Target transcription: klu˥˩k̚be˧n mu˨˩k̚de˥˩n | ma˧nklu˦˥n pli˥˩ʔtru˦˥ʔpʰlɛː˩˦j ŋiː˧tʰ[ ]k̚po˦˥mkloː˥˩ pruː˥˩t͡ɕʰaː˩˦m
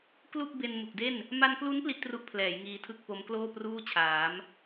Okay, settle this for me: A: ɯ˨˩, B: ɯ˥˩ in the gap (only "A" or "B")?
B